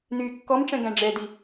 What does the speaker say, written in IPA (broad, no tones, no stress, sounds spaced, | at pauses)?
n yː kː ɔ m ʈ͡ʂ ɛ̃ ɡ æ̃ ɖ͡ʐ ɛ d i